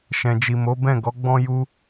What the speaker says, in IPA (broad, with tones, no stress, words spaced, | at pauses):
ʃɛ̃˨d͡ʒi˨mo˨˦bɛ̃˦˨ ɡɔ˨˦ɡ͡bɔ̃˦ ju˦